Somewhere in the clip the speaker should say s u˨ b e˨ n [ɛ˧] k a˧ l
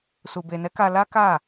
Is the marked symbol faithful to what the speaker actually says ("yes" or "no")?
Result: no